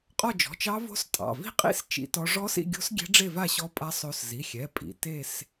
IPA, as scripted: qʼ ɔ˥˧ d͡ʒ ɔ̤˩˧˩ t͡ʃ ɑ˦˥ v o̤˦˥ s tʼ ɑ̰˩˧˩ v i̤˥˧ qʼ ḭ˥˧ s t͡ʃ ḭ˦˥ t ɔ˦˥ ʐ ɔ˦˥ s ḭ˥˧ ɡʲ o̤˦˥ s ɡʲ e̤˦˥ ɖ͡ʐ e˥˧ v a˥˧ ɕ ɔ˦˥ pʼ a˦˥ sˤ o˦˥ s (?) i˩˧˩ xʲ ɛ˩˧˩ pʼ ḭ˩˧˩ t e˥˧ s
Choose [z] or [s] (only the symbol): z